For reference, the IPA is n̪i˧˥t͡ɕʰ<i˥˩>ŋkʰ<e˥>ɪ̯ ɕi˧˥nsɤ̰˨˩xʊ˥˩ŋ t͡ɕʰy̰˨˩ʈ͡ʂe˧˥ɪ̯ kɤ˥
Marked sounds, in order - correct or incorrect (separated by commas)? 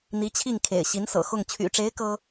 correct, incorrect